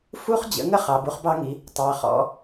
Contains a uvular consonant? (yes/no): yes